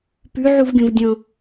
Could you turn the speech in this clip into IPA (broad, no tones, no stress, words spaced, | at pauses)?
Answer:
pʉʕuvɡʲõv dʲɔ̃